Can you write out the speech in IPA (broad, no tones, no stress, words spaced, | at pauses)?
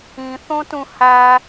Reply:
ĩθõtũ hæ